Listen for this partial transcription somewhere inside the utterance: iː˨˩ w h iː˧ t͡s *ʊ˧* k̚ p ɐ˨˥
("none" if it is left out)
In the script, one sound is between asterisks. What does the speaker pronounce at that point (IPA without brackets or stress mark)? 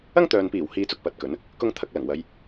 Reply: ʊ˧